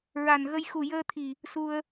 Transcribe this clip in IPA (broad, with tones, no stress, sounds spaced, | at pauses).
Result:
ɹ a˨˩ n ɣ ə˧ j x u˨˩ j əː˧ t̪ʰ i˨˩ | s u˧ ə̯